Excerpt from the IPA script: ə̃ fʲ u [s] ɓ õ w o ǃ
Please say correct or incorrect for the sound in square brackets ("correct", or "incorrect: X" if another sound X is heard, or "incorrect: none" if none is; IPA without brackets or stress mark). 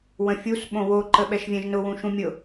correct